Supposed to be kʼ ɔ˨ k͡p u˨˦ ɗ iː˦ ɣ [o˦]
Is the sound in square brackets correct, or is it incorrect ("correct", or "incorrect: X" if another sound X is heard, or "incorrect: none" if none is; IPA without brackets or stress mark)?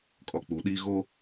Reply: correct